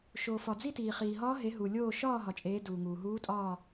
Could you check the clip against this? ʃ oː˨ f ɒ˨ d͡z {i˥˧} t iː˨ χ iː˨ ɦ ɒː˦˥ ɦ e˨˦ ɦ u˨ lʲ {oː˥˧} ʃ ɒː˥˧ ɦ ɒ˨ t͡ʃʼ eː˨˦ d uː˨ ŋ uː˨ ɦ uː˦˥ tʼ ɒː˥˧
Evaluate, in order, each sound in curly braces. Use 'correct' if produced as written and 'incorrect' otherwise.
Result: correct, correct

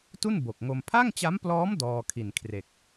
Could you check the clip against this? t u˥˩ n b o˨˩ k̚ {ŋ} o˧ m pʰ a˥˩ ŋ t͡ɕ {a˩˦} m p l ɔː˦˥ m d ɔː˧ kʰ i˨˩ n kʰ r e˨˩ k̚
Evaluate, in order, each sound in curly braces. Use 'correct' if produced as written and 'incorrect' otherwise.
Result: correct, incorrect: a˦˥

